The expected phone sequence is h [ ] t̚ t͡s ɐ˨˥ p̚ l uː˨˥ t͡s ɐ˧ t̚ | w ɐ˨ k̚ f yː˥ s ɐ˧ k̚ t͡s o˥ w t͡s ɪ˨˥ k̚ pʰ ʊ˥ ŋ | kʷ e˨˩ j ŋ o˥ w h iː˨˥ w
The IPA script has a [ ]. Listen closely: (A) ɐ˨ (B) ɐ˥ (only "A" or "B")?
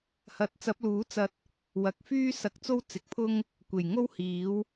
A